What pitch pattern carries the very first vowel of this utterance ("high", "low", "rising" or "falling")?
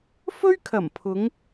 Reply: high